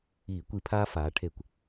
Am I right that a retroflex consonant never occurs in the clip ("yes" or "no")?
no